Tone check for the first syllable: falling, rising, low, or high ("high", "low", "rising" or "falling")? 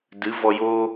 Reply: rising